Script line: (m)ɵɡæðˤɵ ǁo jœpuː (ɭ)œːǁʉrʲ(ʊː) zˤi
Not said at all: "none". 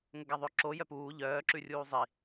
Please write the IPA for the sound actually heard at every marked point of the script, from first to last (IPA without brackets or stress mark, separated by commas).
ŋ, ʎ, uː